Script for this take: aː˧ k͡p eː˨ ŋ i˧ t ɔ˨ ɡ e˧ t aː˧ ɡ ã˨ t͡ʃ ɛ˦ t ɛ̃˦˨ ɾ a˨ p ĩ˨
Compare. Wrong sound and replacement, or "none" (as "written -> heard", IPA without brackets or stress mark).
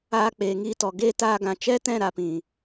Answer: none